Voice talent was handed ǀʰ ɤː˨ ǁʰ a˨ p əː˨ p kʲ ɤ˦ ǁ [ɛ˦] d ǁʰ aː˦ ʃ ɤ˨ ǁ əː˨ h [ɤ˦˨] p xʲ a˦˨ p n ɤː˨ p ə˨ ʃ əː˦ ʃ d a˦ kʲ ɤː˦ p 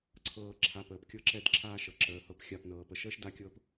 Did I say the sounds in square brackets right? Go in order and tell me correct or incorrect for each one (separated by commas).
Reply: correct, correct